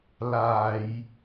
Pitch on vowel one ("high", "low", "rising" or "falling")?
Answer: low